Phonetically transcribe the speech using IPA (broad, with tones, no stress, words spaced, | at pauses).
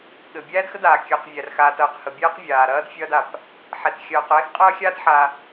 ɠɘ˩ bʲæː˥dxə˥daː˩ kʲəː˨qvʲæ˩rxaː˨tɐː˩q hə˨bʲɛː˥qvʲaː˩ ɾɐː˥dfʲɐː˦da˩p | ħɛ˩txʲɐː˨q ɛː˦xqʼɐː˦xʲaː˦t ħa˨